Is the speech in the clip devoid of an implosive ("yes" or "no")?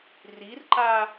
yes